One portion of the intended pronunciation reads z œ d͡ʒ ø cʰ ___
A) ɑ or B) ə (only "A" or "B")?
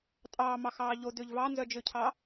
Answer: A